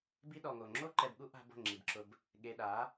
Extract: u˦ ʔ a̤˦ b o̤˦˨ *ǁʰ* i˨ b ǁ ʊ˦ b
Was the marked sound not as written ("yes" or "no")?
yes